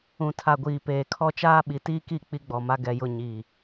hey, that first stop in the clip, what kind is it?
aspirated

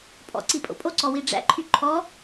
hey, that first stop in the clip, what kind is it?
ejective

